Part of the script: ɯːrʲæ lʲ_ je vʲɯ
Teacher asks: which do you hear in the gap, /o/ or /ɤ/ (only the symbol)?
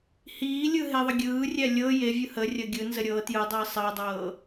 ɤ